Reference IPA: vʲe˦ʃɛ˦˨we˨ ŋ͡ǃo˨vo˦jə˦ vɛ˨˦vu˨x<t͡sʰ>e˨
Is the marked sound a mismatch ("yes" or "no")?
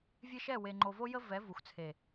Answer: no